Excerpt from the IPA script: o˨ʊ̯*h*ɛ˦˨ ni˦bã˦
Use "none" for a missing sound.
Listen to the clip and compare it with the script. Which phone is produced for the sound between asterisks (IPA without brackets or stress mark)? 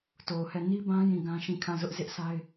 h